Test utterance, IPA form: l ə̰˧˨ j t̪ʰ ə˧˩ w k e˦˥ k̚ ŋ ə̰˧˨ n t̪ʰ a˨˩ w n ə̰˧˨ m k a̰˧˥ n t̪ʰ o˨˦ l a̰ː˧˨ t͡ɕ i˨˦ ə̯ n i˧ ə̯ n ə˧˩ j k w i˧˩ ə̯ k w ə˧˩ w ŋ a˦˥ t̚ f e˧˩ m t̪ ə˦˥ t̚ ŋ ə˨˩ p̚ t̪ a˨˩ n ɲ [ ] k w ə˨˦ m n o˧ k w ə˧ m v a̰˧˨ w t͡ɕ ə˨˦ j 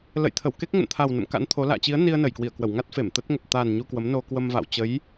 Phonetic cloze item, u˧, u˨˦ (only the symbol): u˧